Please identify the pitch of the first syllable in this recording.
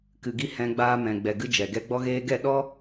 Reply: low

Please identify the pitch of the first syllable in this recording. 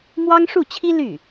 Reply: high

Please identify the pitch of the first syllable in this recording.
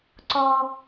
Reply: high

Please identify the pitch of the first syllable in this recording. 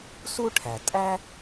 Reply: high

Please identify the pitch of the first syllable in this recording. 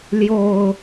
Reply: low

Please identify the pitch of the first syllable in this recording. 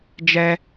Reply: high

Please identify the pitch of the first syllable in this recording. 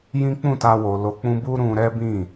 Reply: high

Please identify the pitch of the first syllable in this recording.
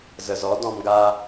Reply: low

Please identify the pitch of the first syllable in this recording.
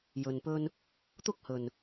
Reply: low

